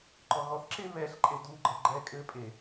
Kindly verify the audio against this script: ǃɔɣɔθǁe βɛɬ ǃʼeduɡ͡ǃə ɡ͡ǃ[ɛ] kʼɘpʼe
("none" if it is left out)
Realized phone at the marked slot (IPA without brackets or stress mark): ɛ